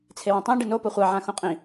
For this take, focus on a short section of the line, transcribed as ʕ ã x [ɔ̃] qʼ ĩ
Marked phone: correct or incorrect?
incorrect